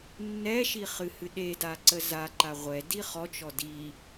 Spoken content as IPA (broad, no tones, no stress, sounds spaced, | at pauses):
nː ɛ ʃ i χ ɨ h ɨ ɗ e d a ǀ ə z a ǃ a ʁʷ ɛ d i χ ɔ t͡ʃ ɔ d i